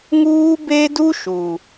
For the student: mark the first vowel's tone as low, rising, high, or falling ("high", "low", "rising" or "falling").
high